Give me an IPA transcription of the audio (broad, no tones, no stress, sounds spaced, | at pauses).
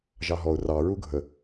ʒ ɑ ɦ ɔ ʊ̯ r ɑ ɹ u ɡʱ ə